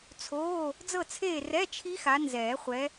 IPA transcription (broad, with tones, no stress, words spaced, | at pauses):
t͡sʰoː˧˥˧ | d͡zɤ˦˨t͡sʰeː˦˨ rɛ˧˥˧ t͡ʃʰi˦˥xa˨˦ nzɛː˨˩˦χʷɛ˨˦